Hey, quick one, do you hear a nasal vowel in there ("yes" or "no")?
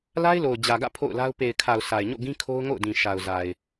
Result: yes